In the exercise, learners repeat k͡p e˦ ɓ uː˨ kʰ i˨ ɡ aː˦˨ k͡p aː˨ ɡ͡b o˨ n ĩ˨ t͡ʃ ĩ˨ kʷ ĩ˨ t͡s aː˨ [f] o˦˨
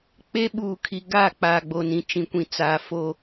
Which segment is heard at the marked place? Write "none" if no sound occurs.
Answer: f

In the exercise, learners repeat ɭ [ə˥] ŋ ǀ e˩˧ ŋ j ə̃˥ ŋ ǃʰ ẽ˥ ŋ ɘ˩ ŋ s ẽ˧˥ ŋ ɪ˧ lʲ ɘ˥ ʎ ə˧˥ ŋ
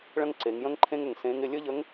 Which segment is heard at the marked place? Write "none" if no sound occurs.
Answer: ə̃˥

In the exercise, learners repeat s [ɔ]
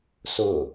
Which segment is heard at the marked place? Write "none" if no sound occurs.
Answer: ʊ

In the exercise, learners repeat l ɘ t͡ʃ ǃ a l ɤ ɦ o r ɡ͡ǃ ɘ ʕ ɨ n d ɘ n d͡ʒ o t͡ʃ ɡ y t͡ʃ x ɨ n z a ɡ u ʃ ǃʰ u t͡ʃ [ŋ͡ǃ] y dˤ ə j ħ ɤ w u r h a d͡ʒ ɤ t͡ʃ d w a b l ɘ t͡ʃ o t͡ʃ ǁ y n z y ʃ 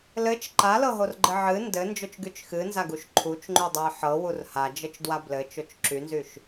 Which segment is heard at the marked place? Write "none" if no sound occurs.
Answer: ŋ͡ǃ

